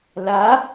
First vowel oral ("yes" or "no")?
yes